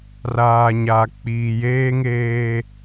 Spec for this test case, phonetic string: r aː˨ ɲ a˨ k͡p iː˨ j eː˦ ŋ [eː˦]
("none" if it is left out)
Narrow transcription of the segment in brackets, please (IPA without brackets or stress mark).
eː˦